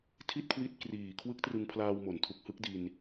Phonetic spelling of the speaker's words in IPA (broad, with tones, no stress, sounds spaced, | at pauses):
tʰ i˥˩ t̚ kʰ w i˦˥ t̚ k r iː˨˩ kʰ w ɯ˦˥ k̚ t r ɯ˧ ŋ pʰ l aː˧ w m o˨˩ n tʰ u˨˩ k̚ h ɯ˦˥ k̚ d i˧ n